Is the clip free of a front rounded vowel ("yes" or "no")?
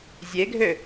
no